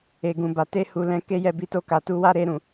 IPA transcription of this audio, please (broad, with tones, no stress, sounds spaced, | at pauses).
e˨ ɡ ũ˨ b a˨ t e˧ h u˨ l ɛ̃˨˦ k e˦ j ɛ˦˨ b i˧ t o˧ k a˨ t u˧ w a˦ ɾ e˧ ɾ ũ˨